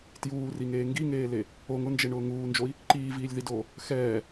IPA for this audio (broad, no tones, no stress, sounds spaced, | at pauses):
t j uː r i ŋ eː ŋ ɡ i ŋ eː l e | o ŋ ʊ n d͡ʒ e ɳ ʊː ŋ uː n d͡ʒ o i̯ | ǃ iː v iː lʲ ð i d oː | x ɛː